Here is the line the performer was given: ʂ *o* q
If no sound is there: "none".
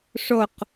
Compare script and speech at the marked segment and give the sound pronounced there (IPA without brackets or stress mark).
o